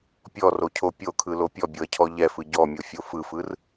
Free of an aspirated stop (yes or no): no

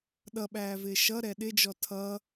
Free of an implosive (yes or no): no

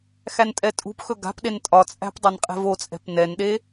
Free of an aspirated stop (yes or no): yes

